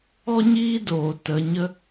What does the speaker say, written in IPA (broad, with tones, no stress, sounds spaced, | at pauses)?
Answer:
ɔ˦ ɲ iː˦ d oː˨ t ə˧ ɲ ə˦